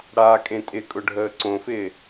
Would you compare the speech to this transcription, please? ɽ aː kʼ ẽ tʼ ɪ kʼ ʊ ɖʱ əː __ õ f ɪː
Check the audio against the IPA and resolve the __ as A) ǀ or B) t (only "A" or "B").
A